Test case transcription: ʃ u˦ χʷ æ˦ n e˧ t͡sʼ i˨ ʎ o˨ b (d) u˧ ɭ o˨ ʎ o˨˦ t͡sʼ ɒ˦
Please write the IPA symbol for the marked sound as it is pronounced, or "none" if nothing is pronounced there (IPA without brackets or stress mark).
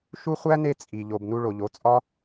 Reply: n